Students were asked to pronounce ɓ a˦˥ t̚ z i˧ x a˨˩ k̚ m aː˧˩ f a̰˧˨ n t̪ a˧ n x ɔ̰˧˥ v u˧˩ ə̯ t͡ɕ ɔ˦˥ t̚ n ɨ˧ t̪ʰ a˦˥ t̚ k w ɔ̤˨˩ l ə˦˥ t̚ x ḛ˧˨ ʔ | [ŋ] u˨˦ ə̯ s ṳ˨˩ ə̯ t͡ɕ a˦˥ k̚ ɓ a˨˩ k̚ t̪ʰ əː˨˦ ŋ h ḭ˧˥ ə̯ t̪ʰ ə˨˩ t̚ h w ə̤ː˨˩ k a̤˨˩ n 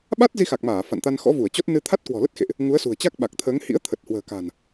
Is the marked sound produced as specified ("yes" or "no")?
yes